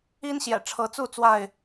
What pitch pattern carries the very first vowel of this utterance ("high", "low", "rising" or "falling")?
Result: high